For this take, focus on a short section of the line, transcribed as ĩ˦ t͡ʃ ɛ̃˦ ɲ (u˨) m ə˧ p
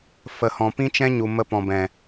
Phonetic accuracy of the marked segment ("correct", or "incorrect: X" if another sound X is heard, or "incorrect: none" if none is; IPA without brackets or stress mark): correct